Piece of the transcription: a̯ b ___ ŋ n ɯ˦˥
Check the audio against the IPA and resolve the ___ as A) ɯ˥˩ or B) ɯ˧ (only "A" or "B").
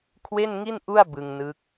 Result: B